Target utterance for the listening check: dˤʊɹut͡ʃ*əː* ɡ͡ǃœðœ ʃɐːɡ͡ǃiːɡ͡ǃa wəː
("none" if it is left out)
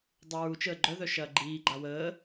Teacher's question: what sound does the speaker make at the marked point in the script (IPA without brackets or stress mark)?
əː